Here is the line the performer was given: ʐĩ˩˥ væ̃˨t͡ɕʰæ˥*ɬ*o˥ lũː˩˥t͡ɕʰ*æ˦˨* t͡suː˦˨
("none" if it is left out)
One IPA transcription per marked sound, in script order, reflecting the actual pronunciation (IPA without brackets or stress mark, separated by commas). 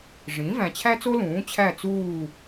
t͡s, æ˦˨